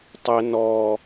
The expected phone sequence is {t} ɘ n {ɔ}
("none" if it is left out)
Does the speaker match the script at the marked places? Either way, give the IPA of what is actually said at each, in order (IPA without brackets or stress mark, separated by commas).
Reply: tˤ, ɔ